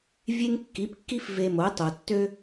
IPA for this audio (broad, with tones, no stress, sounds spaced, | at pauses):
vʲ e˥ ŋ kː i˩˥ p kː i˥ f v e˧ m o˩˥ tˤ o˩ tː ø˥